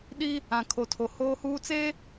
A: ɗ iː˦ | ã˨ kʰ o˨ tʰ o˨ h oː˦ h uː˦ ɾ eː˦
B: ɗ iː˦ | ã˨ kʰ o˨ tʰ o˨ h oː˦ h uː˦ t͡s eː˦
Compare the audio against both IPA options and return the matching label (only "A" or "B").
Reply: B